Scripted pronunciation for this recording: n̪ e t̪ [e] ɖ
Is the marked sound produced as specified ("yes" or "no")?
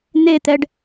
no